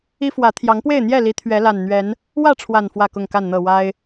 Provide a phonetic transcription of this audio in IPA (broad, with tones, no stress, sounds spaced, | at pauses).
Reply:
i˦ f w ä˨˦ t̪ʰ j ɑ˨˦ ŋ p w e˥˨ ɪ̯ n̪ j ɛ˥˨ l i˨˦ t̪ʰ ɥ ɛ˨˦ l a˨˩ n n̪ ɥ ɛ˨˦ n | w ä˥˨ ʈ͡ʂʰ w a˨˩ n f w ä˥˨ k ʊ˥˨ ŋ k a˥˨ n n̪ ɤ˥˨ w a˦ ɪ̯